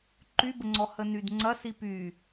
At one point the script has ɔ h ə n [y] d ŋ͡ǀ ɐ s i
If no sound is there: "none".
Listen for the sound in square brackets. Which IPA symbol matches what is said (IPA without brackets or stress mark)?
y